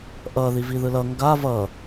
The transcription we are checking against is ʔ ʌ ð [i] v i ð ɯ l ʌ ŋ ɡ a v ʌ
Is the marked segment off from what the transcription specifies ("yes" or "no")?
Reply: no